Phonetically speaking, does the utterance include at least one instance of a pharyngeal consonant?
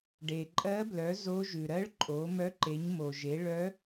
no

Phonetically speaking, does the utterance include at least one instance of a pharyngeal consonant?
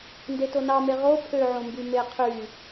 yes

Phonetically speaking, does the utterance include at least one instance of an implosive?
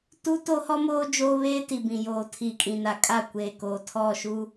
no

